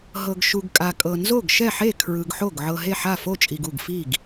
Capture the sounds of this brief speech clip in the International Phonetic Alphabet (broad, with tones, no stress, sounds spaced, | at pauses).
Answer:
ɦ ɤ˨ ɡ ʃ u˨ ɡ kʼ a˨ kʼ ɤ˨ n z o˥˩ ɡ ʃ ɛ˥˩ ħ e˥˩ kʰ ɹ ɯ˨ ɡ ħ o˥˩ ɡ ʕ ɤ˨ ɦ e˥˩ ħ a˥˩ f o˥˩ t͡ʃʼ i˨ ɡ u˥˩ ɡ f i˥˩ ɡ